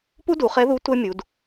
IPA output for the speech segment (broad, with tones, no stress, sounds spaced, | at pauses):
p u˥ d u˩˧ χ ɛ˧˥ ð u˧˥ tʷ ɛ˥ mʲ u˩˧ d